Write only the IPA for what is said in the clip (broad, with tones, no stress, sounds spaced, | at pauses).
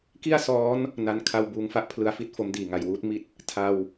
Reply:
k i˥˩ a̯ s ɔː˦˥ n | n a˧ n kʰ a˧ w b uː˩˦ ŋ f a˥˩ ʔ pʰ l ɯ˨˩ a̯ f i˥˩ t̚ f o˦˥ m d iː˨˩ ŋ a˩˦ j w uː˦˥ t̚ m i˦˥ t̚ | tʰ a˧ w